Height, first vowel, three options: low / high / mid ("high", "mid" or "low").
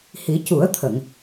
high